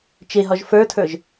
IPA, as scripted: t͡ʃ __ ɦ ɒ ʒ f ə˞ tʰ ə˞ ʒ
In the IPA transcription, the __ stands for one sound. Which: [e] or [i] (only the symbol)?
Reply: e